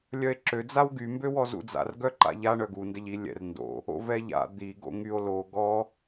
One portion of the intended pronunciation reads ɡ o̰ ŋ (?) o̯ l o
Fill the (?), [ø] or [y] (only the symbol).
y